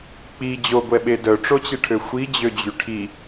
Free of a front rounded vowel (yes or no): no